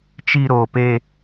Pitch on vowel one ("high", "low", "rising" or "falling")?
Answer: high